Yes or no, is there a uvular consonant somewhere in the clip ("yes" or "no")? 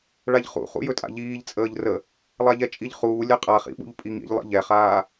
yes